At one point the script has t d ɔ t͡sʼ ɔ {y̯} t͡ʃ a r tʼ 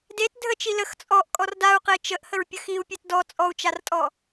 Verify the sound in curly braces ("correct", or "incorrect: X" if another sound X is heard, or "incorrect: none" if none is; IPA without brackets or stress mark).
incorrect: u̯